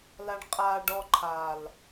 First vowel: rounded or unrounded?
unrounded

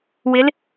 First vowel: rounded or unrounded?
unrounded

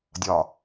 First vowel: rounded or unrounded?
rounded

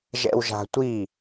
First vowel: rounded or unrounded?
unrounded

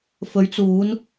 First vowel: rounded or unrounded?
rounded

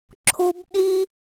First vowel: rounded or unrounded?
rounded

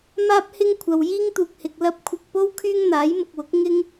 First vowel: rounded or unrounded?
unrounded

